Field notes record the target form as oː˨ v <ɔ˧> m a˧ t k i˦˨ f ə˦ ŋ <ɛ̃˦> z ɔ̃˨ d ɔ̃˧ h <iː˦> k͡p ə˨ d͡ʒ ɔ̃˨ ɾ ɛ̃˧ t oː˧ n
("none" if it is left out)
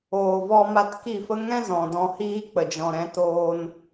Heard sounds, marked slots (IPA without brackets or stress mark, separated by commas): ɔ˧, ɛ̃˦, iː˦